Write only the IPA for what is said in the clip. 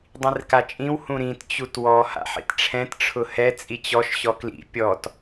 dˤĩrkat͡ʃʼĩw hũɾĩt t͡ɕutwɔ ha̰ħḭtʈ͡ʂʰɛ̃t ʈ͡ʂʰʊhɛ t͡sʼit͡ɕɔʃ ɕɔklḭ pʲɔt

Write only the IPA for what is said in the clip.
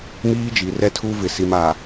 miː˦d͡ʒi˨ rɛ˦tʰu˦vɪ˨ si˨m a˨

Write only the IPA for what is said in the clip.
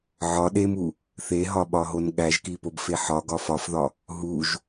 ʕɒ ɗemu | θeɦɒɓɒɦon ɠæʒkipobfe ħɒɡɒ fɒfðɒ | ɦuʒ

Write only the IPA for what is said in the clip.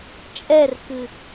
t͡ʃʼɛrkɨ

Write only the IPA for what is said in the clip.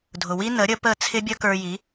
dʱʊ˩wi˥nə˩˥ ɾʲə˩˥pə˥˩ t͡sʰɪ˥bʲə˥kə˞˧ji˩˥

